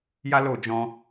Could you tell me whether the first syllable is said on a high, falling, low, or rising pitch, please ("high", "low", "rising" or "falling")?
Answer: high